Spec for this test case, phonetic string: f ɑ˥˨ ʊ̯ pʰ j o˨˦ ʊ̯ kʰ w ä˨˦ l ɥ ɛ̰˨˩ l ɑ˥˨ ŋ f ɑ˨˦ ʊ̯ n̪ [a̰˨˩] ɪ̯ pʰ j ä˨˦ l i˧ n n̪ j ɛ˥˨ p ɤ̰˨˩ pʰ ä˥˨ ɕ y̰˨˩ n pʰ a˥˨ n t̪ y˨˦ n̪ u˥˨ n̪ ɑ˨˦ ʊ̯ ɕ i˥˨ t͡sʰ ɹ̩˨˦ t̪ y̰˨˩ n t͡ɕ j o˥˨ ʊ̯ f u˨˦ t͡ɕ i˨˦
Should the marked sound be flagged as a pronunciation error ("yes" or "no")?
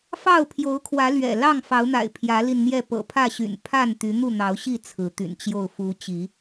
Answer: no